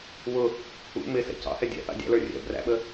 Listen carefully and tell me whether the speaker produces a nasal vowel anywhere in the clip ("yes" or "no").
no